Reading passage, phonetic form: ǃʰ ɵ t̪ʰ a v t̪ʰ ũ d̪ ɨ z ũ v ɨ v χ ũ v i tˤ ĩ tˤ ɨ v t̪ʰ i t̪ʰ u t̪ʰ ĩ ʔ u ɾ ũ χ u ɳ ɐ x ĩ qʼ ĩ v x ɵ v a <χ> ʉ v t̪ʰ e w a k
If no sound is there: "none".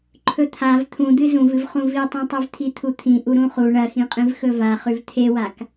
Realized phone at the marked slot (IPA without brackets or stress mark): χ